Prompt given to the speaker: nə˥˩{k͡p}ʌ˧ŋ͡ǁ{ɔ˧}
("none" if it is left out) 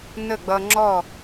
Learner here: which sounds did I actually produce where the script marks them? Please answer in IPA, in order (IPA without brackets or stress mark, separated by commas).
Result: ɡ͡b, ɔ˥˩